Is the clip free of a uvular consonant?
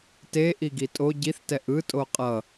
no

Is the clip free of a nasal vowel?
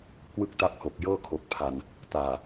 yes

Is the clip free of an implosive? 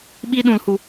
no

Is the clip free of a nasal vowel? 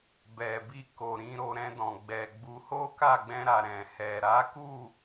no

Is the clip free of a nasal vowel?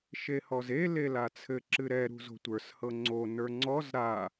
yes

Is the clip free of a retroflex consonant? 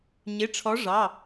no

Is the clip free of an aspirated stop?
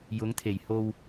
no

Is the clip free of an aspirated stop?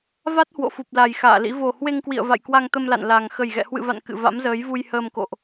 yes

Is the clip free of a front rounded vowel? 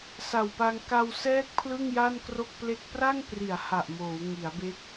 yes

